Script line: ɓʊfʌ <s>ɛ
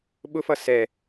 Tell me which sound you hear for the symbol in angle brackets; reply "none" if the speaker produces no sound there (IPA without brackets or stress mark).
s